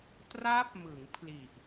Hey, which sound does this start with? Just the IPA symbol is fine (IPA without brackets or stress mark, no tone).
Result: t